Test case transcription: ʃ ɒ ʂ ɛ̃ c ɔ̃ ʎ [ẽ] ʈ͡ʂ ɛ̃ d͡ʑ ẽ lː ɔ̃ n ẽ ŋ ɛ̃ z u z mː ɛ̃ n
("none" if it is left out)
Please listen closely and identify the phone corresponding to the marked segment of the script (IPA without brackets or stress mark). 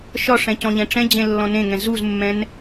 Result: ɛ̃